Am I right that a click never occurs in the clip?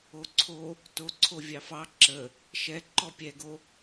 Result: no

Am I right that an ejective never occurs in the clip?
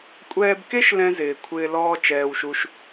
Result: no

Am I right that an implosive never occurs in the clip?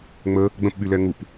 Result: no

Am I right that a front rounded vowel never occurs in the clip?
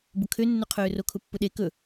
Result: no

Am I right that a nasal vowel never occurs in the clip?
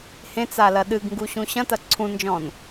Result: no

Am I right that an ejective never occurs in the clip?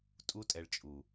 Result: no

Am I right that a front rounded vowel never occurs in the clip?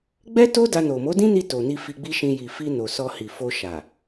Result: yes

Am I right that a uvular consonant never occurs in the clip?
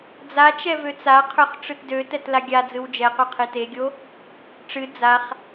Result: no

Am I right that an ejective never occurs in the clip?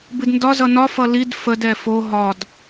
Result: yes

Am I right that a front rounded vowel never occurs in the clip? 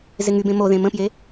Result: no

